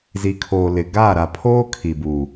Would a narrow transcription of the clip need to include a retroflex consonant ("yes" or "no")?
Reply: no